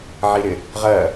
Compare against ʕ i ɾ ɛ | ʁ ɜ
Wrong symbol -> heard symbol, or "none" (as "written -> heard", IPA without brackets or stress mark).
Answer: ɛ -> ɪ